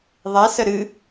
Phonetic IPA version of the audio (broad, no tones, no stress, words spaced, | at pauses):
ðˤɛsə ɾɨ